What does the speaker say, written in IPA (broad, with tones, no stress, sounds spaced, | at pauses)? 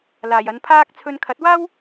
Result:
l aː˨˩ j ɐ˨˧ n pʰ aː˥ k̚ t͡sʰ ɵ˧ n kʰ ɐ˨˥ t̚ w aː˥ w